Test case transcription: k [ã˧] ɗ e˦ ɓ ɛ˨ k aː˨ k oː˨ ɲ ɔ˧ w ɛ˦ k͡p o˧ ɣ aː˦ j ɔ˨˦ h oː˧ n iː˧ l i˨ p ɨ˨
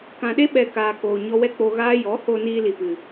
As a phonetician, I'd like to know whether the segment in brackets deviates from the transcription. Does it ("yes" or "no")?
yes